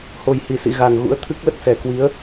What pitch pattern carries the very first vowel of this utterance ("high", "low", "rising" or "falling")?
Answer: low